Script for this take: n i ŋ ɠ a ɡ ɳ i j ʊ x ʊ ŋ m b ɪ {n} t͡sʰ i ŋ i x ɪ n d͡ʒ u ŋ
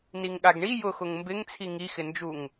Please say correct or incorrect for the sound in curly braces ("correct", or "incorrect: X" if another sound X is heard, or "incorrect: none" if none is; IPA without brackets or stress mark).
incorrect: ŋ